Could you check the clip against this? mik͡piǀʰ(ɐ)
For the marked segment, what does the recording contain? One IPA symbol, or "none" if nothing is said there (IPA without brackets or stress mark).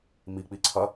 ɐ